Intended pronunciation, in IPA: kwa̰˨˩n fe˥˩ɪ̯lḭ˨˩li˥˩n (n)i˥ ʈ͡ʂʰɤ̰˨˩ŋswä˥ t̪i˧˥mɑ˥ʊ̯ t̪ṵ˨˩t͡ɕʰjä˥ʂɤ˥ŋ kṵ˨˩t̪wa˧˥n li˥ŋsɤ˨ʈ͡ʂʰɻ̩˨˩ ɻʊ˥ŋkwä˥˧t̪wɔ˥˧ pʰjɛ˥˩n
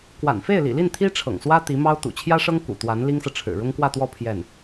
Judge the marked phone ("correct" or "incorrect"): incorrect